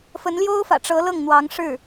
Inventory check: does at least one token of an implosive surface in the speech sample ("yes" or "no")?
no